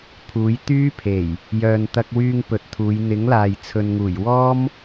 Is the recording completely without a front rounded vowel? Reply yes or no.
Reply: no